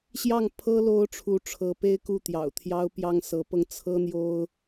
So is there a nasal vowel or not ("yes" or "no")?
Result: no